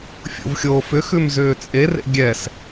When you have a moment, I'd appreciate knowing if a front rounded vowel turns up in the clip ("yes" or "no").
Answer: yes